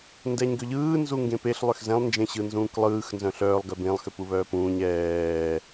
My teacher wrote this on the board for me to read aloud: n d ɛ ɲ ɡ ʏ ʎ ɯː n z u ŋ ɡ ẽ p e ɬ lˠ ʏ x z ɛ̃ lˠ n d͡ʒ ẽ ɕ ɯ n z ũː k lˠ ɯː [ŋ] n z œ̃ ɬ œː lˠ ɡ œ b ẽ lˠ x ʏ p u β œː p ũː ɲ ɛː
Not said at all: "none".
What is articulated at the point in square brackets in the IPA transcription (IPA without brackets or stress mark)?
x